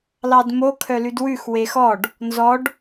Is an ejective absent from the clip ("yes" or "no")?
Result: yes